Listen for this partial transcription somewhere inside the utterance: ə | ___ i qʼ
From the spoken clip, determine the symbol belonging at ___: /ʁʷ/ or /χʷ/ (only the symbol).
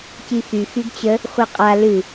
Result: χʷ